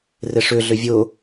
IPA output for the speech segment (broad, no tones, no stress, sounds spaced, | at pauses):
r ɪ ʂ ʏ ɮ ʏ vʲ ʊ